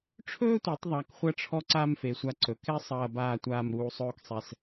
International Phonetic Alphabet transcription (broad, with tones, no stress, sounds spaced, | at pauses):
ʈ͡ʂʰ ɵː˥ tʷ i˩˧ tˤ ðˤ a˧˩ k χʷ ɐ˥ ʈ͡ʂʰ ɔ˥ ǀ aː˥ m f e˩˧ sʷ a˧ ǀ ɵ˩˧ k ɛ˥ sˤ ɐː˧˩ b aː˧˩ tʷ aː˧˩ m ɾ uː˧ sˤ ɵː˥˧ k sˤ ɛ˧˩ s